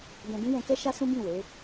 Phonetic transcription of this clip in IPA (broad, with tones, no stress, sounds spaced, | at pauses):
d ɛ̃˧ d ĩ˦ j ɛ̃˧ k ɛ˦ ʃ a˦ s ũ˦ b ĩ˦˨ w e˨˦